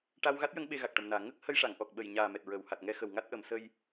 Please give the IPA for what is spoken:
ʈ a˧ w ɣ a˦˥ t̚ j ə˧˥ ŋ ɓ e˧ ɣ a˨˩ k̚ ʈ ə˨˩ m n aː˨˩ ŋ ə˦˥ k̚ h ə˧ j ʂ a˨˩˨ ŋ ʔ ɔ˨˩ k̚ ɓ ə˨˩ j ɲ aː˨˩ m ɛ˨˩ t̚ ɹ əː˨˩˨ w h a˨˩ t̚ ŋ ɛ˧˥ x ə˨˩ w ŋ a˦˥ t̚ ʔ ə˨˩˦ m s ə˧ j

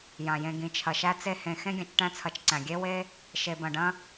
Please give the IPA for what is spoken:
j ã˩ j ẽ˨ ɡ ĩ˩ t͡ʃʰ ɐ˩ ʃ æ˦ t͡s e˦ h ẽ˨ x ẽ˥ ɡʲ ɐ̃˨ t͡ʃ ʈ æ̃˦ t͡sʰ ɐ˨ t͡ʃ ǀ æ̃˩ ɡʲ e˥ w e˥ | ʃ e˨ b ɐ̃˨ ɖ ɐ̃˥

